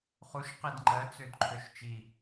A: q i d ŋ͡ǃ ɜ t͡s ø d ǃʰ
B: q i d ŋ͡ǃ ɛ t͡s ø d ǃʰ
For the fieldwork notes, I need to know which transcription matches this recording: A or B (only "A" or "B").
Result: A